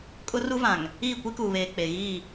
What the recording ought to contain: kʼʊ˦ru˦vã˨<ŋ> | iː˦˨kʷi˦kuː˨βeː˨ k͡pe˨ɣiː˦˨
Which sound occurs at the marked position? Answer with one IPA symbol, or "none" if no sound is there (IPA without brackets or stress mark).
ŋ